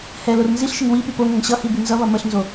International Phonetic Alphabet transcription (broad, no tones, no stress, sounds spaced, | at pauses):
h ɛ l o r n z i ɬ ʃ ə ŋ w i p y p o ŋ ə ŋ ɕ ʌ h i b y n z ʌ β ʌ m ə ɬ n z o